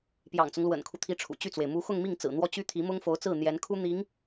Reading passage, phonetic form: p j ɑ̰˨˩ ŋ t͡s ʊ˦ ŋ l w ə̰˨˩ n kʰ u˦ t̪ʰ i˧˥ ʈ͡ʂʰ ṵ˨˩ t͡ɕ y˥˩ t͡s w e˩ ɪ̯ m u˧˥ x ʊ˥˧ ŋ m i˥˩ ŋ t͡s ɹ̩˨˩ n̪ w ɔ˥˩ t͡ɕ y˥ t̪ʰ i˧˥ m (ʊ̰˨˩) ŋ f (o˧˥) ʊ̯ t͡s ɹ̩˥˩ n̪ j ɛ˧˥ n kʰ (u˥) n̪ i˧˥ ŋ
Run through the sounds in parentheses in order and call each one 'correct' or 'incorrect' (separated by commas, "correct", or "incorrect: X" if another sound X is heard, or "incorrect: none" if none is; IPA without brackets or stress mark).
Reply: incorrect: ʊ˥, correct, correct